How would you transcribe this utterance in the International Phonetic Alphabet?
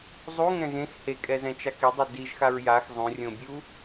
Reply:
zˤuŋɛ̃ ɣẽx hekʼɛzɛ̃t͡ʃa kidˤu diʒxaɹ jax zˤũrʲõbʲu

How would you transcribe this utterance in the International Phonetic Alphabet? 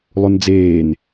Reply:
lˠund͡zeːn

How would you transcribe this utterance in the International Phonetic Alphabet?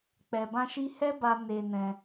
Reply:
k͡pɛ˧bã˦ʃi˦ hɛ˦ba˧ ne˧nɛ̃˧

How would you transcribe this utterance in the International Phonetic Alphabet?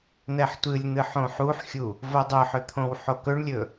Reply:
n̪ɛħtʷɨlʲn̪ɨ ħõħuħxʲu | vodˤɵħʏ t̪ʰõwħokɵɳlʲɵ

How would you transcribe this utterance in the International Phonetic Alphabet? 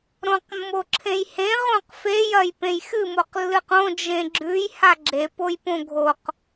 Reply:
ɾõqmːoǁʰẽjhẽ ʁõqfejɐj pẽjxɨmoq lːɨqõ d͡ʒẽɡ͡ǁʉj haɡ͡ǁepojpõ ɡʱoq

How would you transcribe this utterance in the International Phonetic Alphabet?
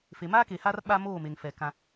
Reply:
fe˨ maː˦ke˨haː˦r ɓa˦moː˦˨me˨ŋfɛ˨ kã˦

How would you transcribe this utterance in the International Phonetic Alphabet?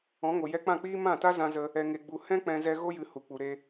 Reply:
ɔ̃˨˦ŋo˨ jɛ˧k͡pã˦˨k͡piː˦ mã˦˨ta˦ zã˧zə˧ | ɛ˨ŋe˨ɡ͡bu˨ hɛ̃˦ k͡pɛ̃˧zɛ˧ ɣo˦jɨ˧ hu˨k͡pu˨ɾe˧

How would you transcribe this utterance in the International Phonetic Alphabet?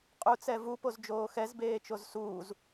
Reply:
qʼut͡sɛ vupozd͡ʒoː xɛzbeːt͡ʃoz suːz

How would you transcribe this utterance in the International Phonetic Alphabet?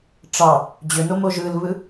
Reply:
ʈ͡ʂɑ | d͡ʑønomo ʒɯlβɯ

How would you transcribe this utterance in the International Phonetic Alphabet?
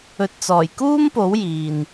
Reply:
ɵ˨t̚t͡sɔː˨˩j kuː˥mpo˨˥w jiː˨n

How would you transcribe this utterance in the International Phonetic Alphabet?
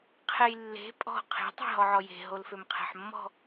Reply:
qʰɛjlːe̤ pʼɔ̤ qʰe̤ tˤɛ̤ɦɔʕɔje̤ ɦolfømqʰɛ̤ħmːɔ̤

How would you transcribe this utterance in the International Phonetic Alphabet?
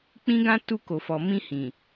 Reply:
k͡pĩ˦ɡã˦ tu˧ko˨fɔ˨mĩ˧ hĩ˨

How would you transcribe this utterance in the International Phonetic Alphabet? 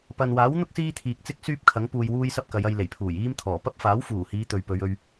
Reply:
pɐ˨nwaː˨˥wn̪ʊ˥k̚ siː˥t̪ʰiː˨k̚ t͡sɪ˥k̚syː˥p̚kʰɐ˨˥ŋ puː˨jwuː˧jsɐ˧p̚ kɐ˨˧jɐ˧jle˨˩j pʰuː˨˩jiː˥mt̪ʰɔː˨˩ pɐ˥p̚faː˨˥wfuː˨˩hiː˨˧ t̪ɵ˨ɥpɵ˨˧ɥ ɵ˧ɥ

